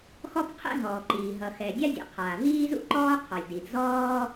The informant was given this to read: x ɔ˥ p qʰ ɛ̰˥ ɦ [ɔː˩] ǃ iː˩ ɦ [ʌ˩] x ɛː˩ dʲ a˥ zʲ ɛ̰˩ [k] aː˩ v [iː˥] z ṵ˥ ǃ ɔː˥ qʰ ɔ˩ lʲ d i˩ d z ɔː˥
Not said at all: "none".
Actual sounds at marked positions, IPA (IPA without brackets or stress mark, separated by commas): ɔː˩, ʌ˩, qʰ, iː˥